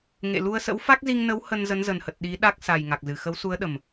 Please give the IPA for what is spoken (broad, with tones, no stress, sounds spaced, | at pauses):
ŋ ḛ˧˨ l u˧ ə̯ s ə̰˧˥ w f a˦˥ k̚ z i˧ ŋ n ə˨˦ w h ə˧ n z ə˨˦ n z ə˨˩ n h ə˨˩ t̚ ɗ i˨˦ ɗ a˦˥ k̚ s a˨˩ j ŋ a˨˩ k̚ z ɨ˨˩ x ə˨˦ w s u˨˦ ə̯ ɗ ə˨˩ m